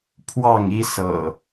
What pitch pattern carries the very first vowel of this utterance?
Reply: falling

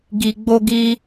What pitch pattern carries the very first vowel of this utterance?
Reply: high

